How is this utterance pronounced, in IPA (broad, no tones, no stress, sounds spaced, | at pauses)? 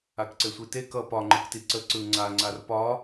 a k ǀ e sʷ i t e k ʌ p ɒ ŋ͡ǃ ɯ k t i ǀ ə ǀ ɯ ŋ͡ǀ a ŋ͡ǀ a r p ɒ